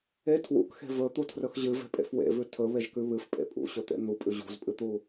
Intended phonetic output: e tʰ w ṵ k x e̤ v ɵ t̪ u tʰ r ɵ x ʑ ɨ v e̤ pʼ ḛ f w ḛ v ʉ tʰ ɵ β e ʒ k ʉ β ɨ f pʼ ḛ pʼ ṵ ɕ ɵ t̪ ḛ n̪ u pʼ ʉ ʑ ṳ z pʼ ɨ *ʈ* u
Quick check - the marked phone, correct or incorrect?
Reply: incorrect